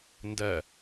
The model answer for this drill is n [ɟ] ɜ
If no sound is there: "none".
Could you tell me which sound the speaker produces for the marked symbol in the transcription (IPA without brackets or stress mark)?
d